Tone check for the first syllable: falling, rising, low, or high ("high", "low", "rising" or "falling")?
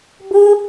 high